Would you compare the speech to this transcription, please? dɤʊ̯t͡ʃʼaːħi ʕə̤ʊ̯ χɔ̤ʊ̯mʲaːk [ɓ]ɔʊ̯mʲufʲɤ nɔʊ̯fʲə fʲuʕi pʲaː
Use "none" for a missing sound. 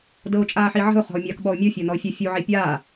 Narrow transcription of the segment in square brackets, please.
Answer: ɓ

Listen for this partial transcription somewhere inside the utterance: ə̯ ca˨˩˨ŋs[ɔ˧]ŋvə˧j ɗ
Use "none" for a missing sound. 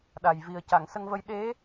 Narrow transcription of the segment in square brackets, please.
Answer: ə˧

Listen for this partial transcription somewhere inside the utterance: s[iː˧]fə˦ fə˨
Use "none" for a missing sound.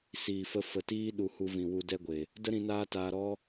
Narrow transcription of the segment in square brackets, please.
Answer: iː˨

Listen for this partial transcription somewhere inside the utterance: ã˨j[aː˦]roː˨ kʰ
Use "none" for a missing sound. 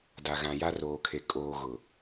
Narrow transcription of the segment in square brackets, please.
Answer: a˦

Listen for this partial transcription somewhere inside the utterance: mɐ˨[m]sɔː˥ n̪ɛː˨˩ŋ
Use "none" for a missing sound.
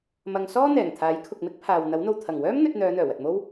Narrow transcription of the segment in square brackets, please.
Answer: ŋ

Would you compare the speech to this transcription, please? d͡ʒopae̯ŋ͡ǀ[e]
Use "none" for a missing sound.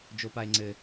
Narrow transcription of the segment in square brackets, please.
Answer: ɘ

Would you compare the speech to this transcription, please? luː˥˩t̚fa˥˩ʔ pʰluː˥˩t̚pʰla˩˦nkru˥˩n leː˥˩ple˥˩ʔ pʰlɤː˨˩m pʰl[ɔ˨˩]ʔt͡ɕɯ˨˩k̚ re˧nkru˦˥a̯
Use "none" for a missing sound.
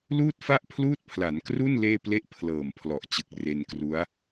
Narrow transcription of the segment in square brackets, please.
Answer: ɔ˨˩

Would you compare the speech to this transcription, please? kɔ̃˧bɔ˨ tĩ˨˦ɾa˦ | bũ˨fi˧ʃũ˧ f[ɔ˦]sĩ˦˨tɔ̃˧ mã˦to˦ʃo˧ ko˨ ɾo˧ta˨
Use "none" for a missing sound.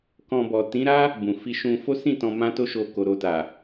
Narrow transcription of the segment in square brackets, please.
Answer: o˦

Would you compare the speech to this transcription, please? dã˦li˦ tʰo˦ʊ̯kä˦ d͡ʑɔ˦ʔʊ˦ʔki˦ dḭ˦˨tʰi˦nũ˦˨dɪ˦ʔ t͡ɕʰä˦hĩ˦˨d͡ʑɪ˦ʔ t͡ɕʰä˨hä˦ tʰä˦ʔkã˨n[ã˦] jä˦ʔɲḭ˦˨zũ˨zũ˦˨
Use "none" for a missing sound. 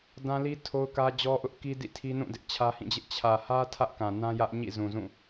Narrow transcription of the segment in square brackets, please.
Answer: ã˦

